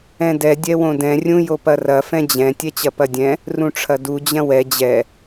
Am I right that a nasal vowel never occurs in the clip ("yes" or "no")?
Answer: no